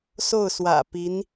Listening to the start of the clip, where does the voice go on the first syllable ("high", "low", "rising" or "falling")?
falling